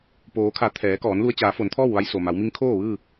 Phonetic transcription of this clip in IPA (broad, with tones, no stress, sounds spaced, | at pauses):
p oː˩˧ kʰ a˩˧ t̪ʰ ɛː˩˧ k ɔː˩˧ n l u˧ ə̯ t͡ɕ aː˩˧ f o˩˧ n t̪ʰ ɔː˥˨ w ʋ a˧ j s o˩ m a˩˧ w m i˧˥ ŋ kʰ oː˥˨ ʋ ɯː˥˨